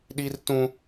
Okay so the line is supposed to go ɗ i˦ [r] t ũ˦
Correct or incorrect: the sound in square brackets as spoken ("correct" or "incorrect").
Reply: correct